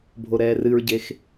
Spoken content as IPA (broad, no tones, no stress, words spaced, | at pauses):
bʱoɾɛːrɨɹɟex